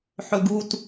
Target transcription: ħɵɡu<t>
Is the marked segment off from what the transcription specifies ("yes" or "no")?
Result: no